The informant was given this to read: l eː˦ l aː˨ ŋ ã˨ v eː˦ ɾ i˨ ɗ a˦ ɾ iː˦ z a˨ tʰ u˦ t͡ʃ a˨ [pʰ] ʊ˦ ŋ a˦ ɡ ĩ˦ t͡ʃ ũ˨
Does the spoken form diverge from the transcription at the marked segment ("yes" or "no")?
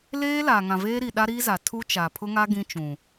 no